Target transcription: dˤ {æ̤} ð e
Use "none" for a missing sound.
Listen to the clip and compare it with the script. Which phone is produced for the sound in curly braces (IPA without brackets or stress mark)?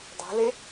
æ̤